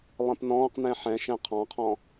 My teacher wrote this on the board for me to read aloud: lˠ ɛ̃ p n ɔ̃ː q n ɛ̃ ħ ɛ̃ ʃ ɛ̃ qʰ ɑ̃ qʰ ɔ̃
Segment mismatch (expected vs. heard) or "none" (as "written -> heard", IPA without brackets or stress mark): none